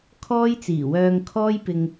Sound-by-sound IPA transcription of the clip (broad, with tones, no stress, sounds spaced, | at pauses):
kʰ ɔː˥ j t͡s iː˨˩ w œː˧ ŋ kʰ ɔː˥ j p ɪ˧ ŋ